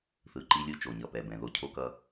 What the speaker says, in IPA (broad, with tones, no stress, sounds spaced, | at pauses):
θ ɯ˨ ǃ i˦ lʲ ɯ˦ t͡ʃ o˨ ɲ ʌ˨ p ɛ˨ b ɛ̃˨ ð o˦ cʰ o˦ k ʌ˦